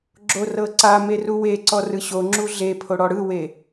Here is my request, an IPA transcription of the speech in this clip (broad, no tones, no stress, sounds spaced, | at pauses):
ɡ͡ǁ o r ɤ ǀ a m e r u w e ǀ ɔ r ɯ ɕ o ŋ͡ǁ u ɮ e pʰ o ɽ ɔ ɽ ɯ w e